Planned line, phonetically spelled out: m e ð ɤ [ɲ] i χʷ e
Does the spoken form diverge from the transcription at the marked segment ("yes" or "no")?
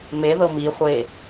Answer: yes